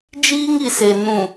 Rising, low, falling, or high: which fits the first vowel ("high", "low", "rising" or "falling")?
high